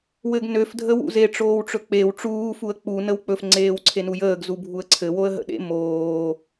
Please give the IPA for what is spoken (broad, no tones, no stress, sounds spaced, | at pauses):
w ɘ ɡ n ø f dʱ ə w ṵ z e ʈ͡ʂ oː w ʈ͡ʂ ɵ k͡p e w ʈ͡ʂ uː f u ə̯ k͡p u n ə w k͡p ɵ f ŋ͡ǀ eː w ǀʰ e n u j əː ɡ z u bʱ u ə̯ ǀʰ ɘ w o ə̯ ɦ ə̰ ɗ ḛ m oː